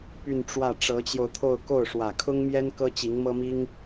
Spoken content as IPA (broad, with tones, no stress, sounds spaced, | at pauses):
p y˥˧ n ʈ͡ʂ w ä˥˩ ʈ͡ʂ ɤ˧˥ t͡ɕ j o˧ ʊ̯ t̪ʰ o˥˧ ʊ̯ k o˥˩ ʊ̯ ʂ w ä˨˩ kʰ ʊ˥ ŋ m j ɛ˥ n k ɤ˥ t͡ɕ i˧˥ ŋ m ɤ˥ m i˥ ŋ